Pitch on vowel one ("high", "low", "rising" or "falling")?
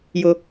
high